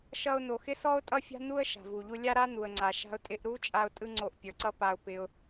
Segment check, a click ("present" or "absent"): present